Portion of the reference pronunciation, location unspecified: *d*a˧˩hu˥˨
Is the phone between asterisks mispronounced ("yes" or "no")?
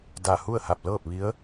no